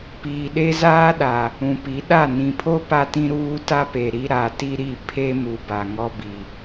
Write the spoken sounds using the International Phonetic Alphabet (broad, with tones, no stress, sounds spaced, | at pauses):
p iː˨ ɗ e˦ z aː˦ ɗ a˨ | ũ˨ p i˨˦ ɗ a˦˨ n ĩ˨ pʰ o˦ p a˦ t ĩ˦ ɾ uː˦ t a˦ p e˨ ɾ i˦ ɾ a˨ t i˦ ɾ i˦˨ pʰ e˦ m u˨ b a˨ ŋ ɔ˦ b i˨